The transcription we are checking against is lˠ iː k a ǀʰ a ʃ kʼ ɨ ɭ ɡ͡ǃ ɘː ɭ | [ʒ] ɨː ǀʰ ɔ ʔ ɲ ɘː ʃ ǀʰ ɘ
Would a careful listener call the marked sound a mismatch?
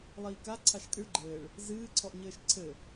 yes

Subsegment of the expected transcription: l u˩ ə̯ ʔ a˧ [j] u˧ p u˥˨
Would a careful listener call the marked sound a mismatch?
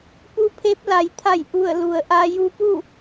no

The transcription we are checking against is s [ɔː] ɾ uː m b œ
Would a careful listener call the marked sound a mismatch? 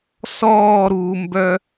no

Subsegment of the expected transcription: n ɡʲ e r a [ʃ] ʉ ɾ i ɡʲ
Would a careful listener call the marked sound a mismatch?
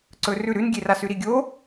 yes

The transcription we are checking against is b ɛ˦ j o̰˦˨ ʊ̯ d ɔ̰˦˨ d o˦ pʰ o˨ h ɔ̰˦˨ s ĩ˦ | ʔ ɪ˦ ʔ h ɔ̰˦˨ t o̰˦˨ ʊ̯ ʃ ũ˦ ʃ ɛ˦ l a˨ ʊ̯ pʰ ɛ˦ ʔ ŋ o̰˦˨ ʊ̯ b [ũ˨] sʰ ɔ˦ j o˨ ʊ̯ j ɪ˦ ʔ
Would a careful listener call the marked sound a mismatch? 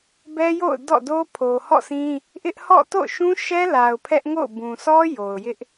no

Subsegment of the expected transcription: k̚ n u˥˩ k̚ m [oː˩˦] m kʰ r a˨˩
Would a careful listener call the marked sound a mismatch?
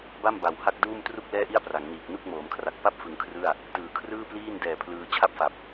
no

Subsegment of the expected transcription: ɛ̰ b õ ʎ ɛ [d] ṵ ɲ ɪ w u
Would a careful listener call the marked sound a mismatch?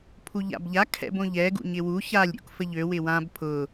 yes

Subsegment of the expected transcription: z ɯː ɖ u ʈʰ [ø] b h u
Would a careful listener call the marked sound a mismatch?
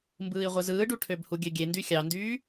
no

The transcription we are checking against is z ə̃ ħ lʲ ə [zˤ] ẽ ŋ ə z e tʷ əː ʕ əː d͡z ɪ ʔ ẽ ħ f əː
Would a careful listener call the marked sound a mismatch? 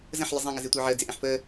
no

